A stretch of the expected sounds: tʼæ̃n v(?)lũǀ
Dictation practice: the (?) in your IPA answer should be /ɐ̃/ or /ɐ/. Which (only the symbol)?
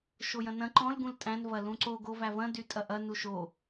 ɐ